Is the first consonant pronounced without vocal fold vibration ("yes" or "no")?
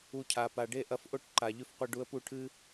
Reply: yes